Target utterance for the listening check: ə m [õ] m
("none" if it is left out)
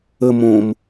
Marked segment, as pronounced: õ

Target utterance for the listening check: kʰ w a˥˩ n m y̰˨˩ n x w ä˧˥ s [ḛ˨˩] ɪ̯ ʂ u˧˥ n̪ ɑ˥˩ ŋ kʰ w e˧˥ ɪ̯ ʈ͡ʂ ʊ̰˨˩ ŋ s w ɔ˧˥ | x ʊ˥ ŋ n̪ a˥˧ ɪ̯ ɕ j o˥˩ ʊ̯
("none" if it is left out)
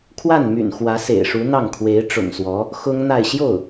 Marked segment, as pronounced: ḛ˨˩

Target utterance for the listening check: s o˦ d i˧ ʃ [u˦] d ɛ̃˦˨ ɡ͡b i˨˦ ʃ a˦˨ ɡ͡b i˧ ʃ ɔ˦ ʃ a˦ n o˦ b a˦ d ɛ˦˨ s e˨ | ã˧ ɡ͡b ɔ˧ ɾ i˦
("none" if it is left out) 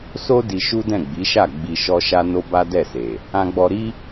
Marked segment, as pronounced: u˦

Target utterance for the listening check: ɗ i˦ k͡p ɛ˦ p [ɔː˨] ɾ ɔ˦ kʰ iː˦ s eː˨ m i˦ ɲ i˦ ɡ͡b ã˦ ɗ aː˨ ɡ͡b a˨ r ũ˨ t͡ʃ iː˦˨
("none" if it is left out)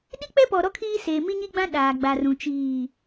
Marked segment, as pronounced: ɔ˨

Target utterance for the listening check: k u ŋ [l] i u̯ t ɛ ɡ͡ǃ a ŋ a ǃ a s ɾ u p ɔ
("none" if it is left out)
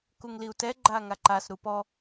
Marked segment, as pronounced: l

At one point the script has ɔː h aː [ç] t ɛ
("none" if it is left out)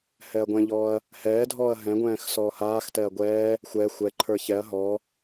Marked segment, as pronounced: x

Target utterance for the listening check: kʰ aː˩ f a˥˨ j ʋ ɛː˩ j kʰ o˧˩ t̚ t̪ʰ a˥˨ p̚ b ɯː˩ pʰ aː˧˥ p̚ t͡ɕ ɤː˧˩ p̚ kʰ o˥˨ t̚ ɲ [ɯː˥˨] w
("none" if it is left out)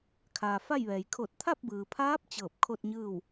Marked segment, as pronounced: ɯː˥˨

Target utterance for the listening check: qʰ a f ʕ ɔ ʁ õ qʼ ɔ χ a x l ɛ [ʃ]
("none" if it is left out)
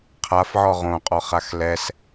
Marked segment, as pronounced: s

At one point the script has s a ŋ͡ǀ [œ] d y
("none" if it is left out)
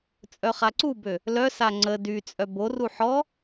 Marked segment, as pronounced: ə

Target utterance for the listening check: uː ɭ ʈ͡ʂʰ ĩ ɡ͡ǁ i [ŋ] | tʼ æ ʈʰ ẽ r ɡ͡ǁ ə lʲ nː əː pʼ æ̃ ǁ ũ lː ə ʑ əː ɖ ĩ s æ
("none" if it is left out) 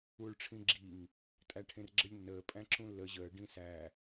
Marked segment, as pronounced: ŋ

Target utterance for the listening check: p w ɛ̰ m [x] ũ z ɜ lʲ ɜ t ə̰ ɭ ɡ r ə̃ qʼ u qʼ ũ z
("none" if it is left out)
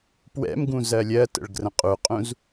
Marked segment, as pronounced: ɡ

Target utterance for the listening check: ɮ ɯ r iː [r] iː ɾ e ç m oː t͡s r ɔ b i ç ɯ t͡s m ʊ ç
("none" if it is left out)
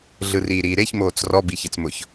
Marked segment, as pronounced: ɾ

